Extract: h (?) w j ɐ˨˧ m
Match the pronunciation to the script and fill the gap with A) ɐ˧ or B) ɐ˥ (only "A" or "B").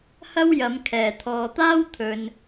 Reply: B